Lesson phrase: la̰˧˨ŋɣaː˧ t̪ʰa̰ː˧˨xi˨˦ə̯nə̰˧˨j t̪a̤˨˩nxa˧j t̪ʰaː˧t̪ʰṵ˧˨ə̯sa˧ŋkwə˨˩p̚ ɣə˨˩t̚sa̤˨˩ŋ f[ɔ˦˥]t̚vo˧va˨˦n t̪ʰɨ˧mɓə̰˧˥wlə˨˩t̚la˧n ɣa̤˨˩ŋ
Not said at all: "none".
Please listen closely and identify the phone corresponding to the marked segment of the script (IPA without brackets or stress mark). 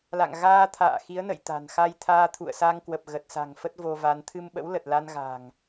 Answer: ə˦˥